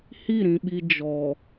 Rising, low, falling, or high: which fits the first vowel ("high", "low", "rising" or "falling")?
falling